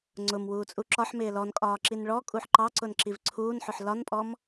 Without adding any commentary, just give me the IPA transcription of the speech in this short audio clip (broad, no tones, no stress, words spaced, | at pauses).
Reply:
ŋ͡ǀʊm wuːt͡sʼuǁɒħ mɪːlɔn kʼɒːǁinɭɔ kʼuħǃɑǀʊn ǁivǀʰuːnħʊħ lɒnpʼɔm